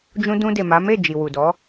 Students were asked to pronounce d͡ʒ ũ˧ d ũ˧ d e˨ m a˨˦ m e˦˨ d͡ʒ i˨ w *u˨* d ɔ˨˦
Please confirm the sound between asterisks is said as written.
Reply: yes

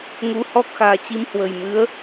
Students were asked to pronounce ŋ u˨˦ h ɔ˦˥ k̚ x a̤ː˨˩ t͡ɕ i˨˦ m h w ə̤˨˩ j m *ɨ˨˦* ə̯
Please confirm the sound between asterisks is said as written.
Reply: yes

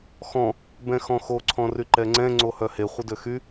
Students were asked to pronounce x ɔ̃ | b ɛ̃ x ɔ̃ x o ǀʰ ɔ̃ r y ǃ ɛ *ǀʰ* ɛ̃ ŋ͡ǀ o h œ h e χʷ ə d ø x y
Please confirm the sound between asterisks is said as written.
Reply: no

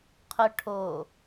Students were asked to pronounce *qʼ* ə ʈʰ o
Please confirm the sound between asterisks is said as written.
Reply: no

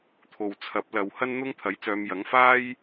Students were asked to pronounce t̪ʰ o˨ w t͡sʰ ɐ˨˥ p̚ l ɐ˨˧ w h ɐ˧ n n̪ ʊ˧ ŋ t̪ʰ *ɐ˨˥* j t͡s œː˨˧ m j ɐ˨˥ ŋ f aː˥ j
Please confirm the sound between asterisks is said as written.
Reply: yes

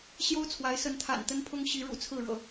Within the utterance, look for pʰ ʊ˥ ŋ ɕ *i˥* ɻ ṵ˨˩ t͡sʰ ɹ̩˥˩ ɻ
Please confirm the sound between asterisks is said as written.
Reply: no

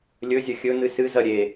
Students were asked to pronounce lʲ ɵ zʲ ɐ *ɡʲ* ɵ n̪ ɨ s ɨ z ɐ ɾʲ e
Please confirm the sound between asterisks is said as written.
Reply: no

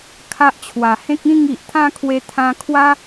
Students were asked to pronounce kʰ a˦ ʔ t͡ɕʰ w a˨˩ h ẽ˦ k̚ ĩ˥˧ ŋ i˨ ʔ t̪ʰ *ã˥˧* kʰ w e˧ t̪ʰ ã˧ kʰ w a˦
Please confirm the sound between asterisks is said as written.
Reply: yes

